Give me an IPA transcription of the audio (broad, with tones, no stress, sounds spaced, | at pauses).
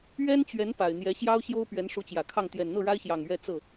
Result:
ɥ ɛ˥ n t͡ɕ ɥ ɛ˧˥ n p a˨˩ ɪ̯ n̪ j ɛ˧˥ ɕ j ɑ˥ ʊ̯ ɕ j o˥ ʊ̯ p ɥ ɛ˧˥ n ʂ u˧˥ t͡ɕ j ä˨˩ kʰ ɑ˥˩ ŋ t̪ j ɛ˨˩ n n̪ ɤ˥˩ ɻ a˥ ɪ̯ ɕ j ɑ˨˩ ŋ ɥ ɛ˥˧ t͡s ɤ˥˩